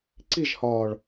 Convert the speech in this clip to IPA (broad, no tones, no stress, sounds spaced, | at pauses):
ǀ i ʒ h ɒː ɭ